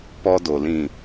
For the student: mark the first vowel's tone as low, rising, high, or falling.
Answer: high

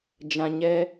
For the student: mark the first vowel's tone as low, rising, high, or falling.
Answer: low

